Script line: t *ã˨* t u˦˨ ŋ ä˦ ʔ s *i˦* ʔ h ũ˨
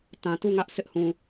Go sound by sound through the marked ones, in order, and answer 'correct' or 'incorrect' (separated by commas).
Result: correct, incorrect